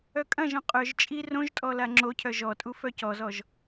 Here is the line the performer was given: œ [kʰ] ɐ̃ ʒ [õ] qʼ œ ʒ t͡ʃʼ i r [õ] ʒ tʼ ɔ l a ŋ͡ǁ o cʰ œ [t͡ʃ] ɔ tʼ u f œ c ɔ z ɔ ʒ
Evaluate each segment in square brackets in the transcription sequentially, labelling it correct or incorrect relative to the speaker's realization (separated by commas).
incorrect, incorrect, correct, incorrect